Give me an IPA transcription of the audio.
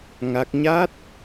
ŋ a˦˥ k̚ ɲ a˦˥ t̚

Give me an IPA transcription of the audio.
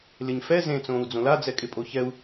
l ɪ ɲ f ɛ z ẽ t͡s õː u̯ d͡z õ l a d͡z ɛ kʼ ɪ pʼ o ç ɛ u̯

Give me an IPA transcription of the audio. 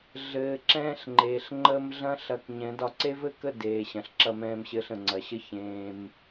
ɮ ɘː˨ ǁ ɛ̃ː˧ ɬ ŋ͡ǃ eː˨ ɬ ŋ͡ǃ əː˧ m ɮ ɐ̃˦ ɬ ɐ˧ k ɲ ɛ̃˨˦ d ɒ˧ ǀ e˦ v ɘ˦ k ə˦˨ d eː˨ ɕ ɐ̃˨ ɬ ǁ ɐ˧ m ɛ̃ː˧ m ɕ ɘː˧ ɬ ə̃˨ ŋ͡ǀ ɐ˨ ɕ ə˦ ç ẽː˧ m

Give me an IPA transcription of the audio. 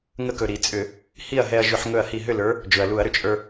ŋ ə˧ k ɵ˩ ɾ i˧˩˧ t͡sʼ ʏ˧˩˧ | h i˥˨ ɐ̯ ɦ ɛ˧ ɐ̯ ʒ ʏ˧˩˧ ħ ŋ ɵ˧˩ ɐ̯ h i˧˩ ɦ ʏ˥˨ l ə˞˨˥ | d͡ʒ ɵ˩ ɐ̯ l u˧˩˧ ɐ̯ ɾ ʏ˩ t͡ʃʼ ə˞˧

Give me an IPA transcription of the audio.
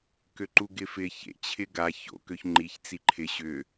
k ø ǃ u ɡ ɪ f ɪ ç ḛ t͡ɕʰ ɪ ɡ a ç o̰ k ø ç ŋ͡ǃ i ç t͡s i ǃʰ ɪ ɕ ʏ

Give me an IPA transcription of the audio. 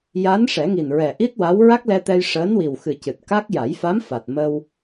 j a˧˥ n ʂ ɛ˨˩˦ ŋ i˨˩ n ɹ ɛ˨˩ ʔ i˦˥ t̚ w a˧˥ w ɹ a˦˥ k̚ l ɛ˧ t̪ ɛ˧ j ʂ əː˧˥ n w i˨˩ w x ɨ˨˩ c ɨ˨˩ t̚ k a˦˥ k̚ j a˨˩˦ j f a˧˥ m f a˨˩ t̚ m ə˧ w

